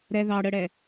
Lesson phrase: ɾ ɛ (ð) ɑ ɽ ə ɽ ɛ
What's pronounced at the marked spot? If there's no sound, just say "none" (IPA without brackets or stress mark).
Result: ð